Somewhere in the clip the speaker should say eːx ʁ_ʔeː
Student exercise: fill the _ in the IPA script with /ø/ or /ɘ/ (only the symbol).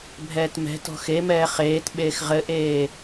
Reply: ɘ